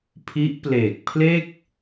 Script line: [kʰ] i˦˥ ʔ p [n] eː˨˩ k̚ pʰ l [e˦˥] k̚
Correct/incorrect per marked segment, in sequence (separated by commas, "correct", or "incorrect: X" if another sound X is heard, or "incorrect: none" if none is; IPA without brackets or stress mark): incorrect: pʰ, incorrect: l, incorrect: e˥˩